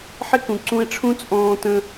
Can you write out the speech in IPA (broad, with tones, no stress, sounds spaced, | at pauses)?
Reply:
ħ ɪ˦ k ũ˨ ǀ ũ˧ e̯ ʈ͡ʂʰ ũ˦ t͡sʼ ɔ̃ː˧ t ə̃˧